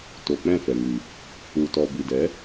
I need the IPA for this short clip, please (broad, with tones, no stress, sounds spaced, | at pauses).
t o˨ k͡p ɛ̃˦˨ f ɛ˨ ŋ i˨ | u˨ t ɔ˨ b i˨ d ɛ˨˦